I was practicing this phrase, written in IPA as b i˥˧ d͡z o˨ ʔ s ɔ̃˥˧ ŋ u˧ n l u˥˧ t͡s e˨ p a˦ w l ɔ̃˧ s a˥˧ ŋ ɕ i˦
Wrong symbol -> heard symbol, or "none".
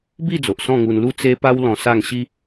e˨ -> e˦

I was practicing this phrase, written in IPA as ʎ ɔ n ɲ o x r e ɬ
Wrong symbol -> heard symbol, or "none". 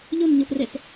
ɔ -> o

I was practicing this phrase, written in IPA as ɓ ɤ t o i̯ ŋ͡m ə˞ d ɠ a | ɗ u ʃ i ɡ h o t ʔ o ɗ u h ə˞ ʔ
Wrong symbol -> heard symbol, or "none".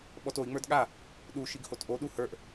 ɤ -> ɔ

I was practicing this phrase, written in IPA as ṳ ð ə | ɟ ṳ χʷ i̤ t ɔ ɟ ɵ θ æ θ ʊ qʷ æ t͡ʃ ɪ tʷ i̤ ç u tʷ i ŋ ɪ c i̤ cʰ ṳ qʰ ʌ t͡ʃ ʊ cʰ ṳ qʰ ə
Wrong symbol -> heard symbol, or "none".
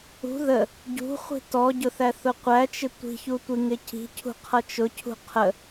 ɵ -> ʊ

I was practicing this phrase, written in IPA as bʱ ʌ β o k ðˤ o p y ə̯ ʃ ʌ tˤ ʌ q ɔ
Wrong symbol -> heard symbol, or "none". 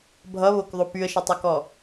q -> k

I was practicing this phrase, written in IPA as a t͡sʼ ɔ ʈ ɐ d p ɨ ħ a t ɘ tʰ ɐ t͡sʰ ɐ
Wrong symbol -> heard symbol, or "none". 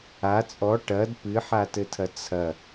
none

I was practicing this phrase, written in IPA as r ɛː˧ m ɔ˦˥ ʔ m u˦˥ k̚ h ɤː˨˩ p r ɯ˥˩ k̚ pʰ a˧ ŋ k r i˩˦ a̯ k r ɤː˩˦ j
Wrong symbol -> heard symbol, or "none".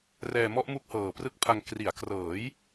none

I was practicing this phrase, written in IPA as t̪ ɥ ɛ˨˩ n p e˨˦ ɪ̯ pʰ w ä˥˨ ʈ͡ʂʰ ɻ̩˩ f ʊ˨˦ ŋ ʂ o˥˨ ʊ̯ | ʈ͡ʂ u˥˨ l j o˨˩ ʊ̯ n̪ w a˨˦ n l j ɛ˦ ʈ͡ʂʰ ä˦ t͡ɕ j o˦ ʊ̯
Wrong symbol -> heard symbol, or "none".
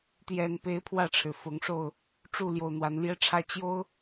ɥ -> j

